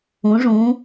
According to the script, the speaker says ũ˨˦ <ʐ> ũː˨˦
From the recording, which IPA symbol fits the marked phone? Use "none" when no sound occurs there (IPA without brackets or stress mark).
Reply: ʐ